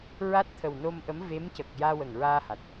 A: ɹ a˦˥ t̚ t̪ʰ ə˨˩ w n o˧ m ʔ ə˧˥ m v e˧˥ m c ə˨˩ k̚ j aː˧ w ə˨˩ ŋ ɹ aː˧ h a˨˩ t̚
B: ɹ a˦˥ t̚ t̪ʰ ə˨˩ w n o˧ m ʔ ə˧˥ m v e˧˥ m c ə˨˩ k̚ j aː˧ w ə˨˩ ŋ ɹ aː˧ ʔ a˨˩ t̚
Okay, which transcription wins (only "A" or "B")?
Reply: A